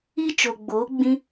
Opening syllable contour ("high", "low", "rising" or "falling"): high